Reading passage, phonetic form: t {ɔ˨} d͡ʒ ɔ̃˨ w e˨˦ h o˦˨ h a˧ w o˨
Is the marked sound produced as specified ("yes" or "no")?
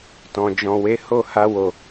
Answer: no